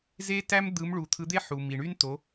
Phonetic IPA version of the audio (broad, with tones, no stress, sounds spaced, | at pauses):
z e˥ t æ˥ m d̪ ɯ˧˥ m ɭ u˧ t̪ʰ ɯ˧˥ d̪ e˥ ħ u˧ m i˧ ɳ y˥ n t o˧˥